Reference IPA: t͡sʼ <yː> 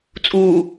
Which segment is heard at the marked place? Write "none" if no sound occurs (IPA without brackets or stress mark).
uː